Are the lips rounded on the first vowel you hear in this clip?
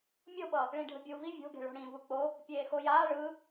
yes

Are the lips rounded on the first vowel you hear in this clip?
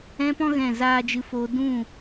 no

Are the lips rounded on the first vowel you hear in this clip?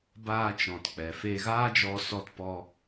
no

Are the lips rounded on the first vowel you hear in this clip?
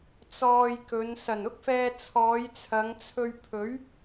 yes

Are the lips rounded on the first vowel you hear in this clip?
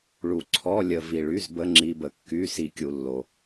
yes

